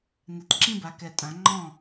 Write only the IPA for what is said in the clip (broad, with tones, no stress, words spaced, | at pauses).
nɛ˨˩tǁĩ˥˧ba˩˥kɛ˨˩ tʼã˩˥ŋ͡ǃɔ̃˥˩